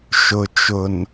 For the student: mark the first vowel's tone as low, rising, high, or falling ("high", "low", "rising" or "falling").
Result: low